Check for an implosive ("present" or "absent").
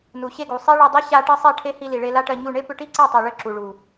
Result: absent